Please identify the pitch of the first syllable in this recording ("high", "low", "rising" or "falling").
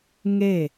falling